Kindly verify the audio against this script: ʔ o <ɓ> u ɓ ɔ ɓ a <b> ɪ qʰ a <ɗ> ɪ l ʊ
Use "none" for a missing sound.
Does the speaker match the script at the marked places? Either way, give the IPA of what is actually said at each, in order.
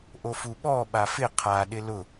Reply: f, f, ɗ

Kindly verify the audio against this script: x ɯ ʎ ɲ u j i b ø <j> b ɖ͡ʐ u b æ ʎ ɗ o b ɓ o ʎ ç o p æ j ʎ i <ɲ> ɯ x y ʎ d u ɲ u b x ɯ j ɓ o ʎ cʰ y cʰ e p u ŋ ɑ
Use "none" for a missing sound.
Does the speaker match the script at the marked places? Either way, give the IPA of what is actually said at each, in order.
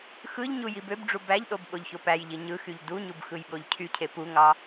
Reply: none, ɲ

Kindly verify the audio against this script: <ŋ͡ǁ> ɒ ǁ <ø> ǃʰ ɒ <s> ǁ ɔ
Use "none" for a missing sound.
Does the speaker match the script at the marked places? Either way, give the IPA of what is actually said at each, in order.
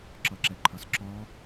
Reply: ǁ, ɛ, s

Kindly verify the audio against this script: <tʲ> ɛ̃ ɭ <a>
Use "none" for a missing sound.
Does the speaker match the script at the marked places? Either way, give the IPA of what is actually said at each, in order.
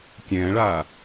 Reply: tʲ, a

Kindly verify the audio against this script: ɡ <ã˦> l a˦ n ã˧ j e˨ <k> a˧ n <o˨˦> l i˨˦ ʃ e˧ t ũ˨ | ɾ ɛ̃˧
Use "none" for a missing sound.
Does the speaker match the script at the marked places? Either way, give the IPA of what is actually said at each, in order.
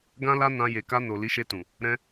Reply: ã˦, k, o˨

